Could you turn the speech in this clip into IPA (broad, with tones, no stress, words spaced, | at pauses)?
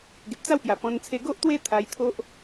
ɡe˨p̚t͡sa˥˧wpja˨˩pɔ̃˧n t͡sʰe˧ɡo˦ʔt̪we˦ t̪ʰa˧jt̪ʰo˦ʔ